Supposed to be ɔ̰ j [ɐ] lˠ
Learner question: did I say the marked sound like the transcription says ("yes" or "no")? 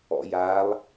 no